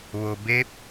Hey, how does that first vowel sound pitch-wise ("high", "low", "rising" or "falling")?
low